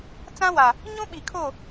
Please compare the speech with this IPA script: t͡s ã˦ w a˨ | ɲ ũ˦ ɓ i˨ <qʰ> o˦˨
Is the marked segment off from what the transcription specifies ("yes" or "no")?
yes